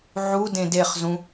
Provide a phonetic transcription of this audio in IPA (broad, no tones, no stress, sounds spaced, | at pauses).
ʕ u d ẽ d e χ z ũ